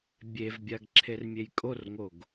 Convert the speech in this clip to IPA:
bʲ e v bʲ a ɡ ǁʰ e r mʲ e j kʼ o r ŋ o ɡ

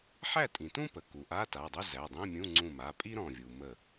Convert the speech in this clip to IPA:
ħ æ˥˨ tʼ ĩ˩ t ũ˥ p ə˩ k u˩ ʔ a˧˥˧ t a˩˧˩ dˤ ə˧˥˧ z æ˩˧˩ dˤ ĩ˧˥˧ mʲ ũ˧˥˧ ŋ͡ǀ ũ˧˩ m a˩˧˩ pʼ i˥ ɾ ɔ̃˧˩ vʲ u˩ m ə˧˩

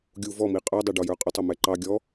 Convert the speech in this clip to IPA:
ɡʲ u v ɔ m i qʼ ə˞ dˤ ɛ ɖ ɔ j ə˞ qʼ ʊ tˤ ʌ m ɛ ǃ ɑ ɡʲ ɔ

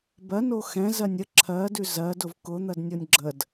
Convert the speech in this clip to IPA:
b ɜ n o x ɛ̃ z ɜ nʲ ə ǁʰ ɜ d ʉ z ɜ d ʊ v k ʊ n̪ ɜ d nʲ o nʲ ɡ͡ǁ ə d

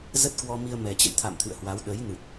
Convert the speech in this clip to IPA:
z ə˦˥ t̚ k w ɔ˧ m i˧ ə̯ m ɛ˨˩ t͡ɕ ə̰˧˨ j t̪ʰ a̰˧˨ m t̪ʰ ɨ̰˧˨ ə̯ h w a˨˦ w ɗ ə˨˦ j n ɨ˨˩ t̚

